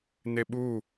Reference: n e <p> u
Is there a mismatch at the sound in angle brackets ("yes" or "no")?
yes